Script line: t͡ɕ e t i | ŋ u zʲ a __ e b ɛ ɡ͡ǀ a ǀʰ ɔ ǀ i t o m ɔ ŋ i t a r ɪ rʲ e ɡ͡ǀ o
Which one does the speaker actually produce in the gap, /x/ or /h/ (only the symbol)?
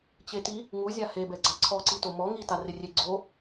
h